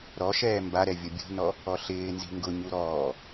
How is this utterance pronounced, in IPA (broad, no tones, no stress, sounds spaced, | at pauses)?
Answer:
ɾ ɔ ʃ ɛː m b a ɾ ɛ vʲ ʊ bʲ ṳ n ɔ | ɔ ɬ ɪː n z i̤ ŋ ɡ ʊ ɲ u ɾ ɔː